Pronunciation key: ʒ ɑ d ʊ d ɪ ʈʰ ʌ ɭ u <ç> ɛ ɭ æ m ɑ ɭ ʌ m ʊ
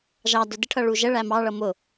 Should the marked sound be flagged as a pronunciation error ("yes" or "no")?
yes